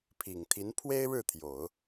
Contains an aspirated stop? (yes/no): yes